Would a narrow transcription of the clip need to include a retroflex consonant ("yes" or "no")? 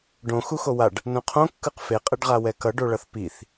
yes